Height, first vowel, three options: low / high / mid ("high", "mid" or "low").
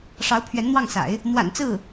low